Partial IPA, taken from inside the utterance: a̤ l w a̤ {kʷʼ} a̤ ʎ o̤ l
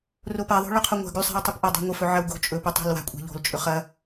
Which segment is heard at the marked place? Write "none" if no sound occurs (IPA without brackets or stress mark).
kʷʼ